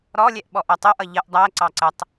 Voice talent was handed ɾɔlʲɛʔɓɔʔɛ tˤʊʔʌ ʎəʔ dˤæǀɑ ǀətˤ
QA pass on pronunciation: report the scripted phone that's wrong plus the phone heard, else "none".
none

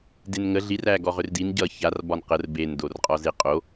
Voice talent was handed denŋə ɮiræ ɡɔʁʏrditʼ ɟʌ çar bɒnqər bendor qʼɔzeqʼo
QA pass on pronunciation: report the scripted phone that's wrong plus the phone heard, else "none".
tʼ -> n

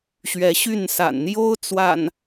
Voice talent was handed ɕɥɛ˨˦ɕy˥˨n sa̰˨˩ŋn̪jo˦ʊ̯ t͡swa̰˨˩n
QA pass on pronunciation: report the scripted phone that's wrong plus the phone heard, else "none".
ŋ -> n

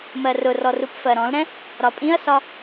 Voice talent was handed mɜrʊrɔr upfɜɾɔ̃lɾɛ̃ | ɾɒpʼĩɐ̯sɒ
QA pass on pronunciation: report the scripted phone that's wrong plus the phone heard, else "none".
none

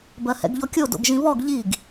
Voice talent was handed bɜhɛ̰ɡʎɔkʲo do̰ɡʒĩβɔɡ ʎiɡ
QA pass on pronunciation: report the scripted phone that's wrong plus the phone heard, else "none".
none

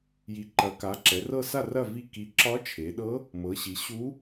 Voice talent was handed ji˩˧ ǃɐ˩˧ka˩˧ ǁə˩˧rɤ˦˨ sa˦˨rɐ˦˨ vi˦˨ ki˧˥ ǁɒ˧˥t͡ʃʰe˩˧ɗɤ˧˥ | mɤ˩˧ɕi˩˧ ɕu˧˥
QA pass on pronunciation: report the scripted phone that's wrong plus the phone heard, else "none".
ə˩˧ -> ɛ˩˧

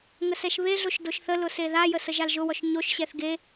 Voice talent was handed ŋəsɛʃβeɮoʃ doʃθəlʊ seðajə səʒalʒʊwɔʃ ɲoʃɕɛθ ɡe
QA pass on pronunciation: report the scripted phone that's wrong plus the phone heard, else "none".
none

